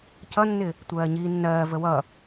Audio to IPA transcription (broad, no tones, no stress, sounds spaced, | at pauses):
c ʌ nː ɪ | tʷ ɜː ɲ iː nː ɜː v ə w ʌ